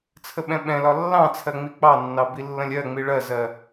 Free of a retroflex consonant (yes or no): no